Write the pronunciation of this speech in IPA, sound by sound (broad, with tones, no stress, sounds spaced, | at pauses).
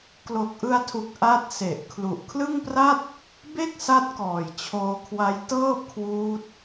k l o˨˩ k̚ ʔ ɯ˧ a̯ tʰ u˨˩ k̚ ʔ a˦˥ t̚ s e˨˩ ʔ kʰ l u˨˩ ʔ kʰ l ɯ˥˩ ŋ p r a˥˩ t̚ | b e˥˩ k̚ s a˦˥ t̚ k ɔː˨˩ j t͡ɕʰ oː˧ kʰ w a˦˥ j t ɤː˥˩ p̚ kʰ w uː˦˥ t̚